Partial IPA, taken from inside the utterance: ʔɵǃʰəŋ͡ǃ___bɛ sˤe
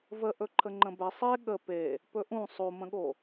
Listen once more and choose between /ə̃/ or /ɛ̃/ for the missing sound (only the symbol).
ə̃